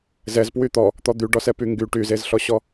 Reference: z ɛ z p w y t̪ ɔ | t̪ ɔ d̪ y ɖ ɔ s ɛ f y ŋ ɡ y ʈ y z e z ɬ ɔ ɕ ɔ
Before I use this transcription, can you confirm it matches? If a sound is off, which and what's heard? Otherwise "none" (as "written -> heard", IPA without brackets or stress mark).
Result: f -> p